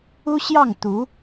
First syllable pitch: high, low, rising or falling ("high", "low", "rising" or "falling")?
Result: high